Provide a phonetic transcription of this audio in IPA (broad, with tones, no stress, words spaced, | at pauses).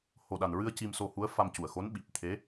ho˨˩ɗa˨˩nɹɨ˧ə̯ ci˧mso˧hu˧˥ə̯ fa˧mcu˨˩ə̯xo˧˥n ɓi˨˩p̚ t̪ʰe˧˥